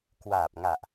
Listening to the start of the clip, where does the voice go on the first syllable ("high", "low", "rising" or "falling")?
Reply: low